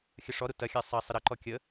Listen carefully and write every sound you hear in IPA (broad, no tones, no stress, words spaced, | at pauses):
xʲəʂɔɾu tɐxʲa sˤɐ sˤəɾɐǃɔ kʲə